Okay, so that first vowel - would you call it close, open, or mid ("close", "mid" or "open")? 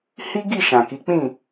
close